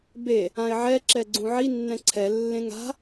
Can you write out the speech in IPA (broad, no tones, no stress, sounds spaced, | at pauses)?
b e | ã ɪ̯ ʕ ɛ ǁ ɛ ɡ͡ǀ ũ ʕ i nː ɛ̃ ǀʰ ɛ lː ẽ ŋ a̤